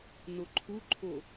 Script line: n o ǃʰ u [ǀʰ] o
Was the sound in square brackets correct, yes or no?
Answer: no